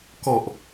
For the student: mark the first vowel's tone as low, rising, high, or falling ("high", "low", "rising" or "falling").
low